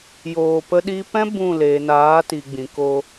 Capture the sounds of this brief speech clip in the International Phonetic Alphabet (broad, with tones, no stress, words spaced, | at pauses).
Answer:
joː˧pə˦ɗi˦ pɛ̃˦ bũ˦˨ leː˨naː˨˦ ti˨ɡ͡bĩ˨ ko˧